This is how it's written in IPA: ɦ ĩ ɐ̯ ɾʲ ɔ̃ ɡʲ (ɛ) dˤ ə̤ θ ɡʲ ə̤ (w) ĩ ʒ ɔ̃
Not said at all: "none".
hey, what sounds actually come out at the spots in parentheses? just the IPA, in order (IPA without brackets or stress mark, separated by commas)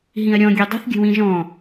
e, w